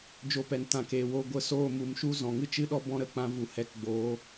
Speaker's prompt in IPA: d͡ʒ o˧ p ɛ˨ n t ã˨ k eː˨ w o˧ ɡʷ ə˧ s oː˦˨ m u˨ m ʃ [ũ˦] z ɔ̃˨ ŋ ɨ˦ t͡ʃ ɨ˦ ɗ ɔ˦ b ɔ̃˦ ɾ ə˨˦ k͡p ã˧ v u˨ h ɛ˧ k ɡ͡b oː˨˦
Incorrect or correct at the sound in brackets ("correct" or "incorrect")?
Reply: incorrect